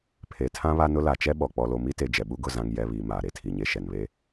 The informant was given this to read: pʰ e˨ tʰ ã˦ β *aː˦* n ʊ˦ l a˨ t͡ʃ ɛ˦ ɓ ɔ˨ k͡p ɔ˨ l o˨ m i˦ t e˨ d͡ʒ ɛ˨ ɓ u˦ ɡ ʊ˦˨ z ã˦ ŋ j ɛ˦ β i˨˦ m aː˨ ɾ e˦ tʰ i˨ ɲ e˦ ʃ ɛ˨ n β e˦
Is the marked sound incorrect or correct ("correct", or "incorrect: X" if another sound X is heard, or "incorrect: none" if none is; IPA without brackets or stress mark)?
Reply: incorrect: a˦